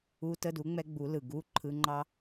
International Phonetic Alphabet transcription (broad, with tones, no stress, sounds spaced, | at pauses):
u˧˥˧ t ə˥˧ d u˨˥ ŋ͡m ɛ˥ ɡ͡b u˨˥ l ɯ˩ ɡ u˧˥˧ ǃʰ ɯ˧˥˧ ŋ͡ǃ ɑ˥